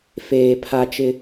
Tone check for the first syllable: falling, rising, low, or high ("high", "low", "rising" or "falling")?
low